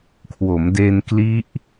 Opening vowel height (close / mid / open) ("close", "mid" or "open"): mid